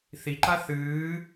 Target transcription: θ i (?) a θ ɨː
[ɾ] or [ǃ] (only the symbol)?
ǃ